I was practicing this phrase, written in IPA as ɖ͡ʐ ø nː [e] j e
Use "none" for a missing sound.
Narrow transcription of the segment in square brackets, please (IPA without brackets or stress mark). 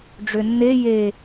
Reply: e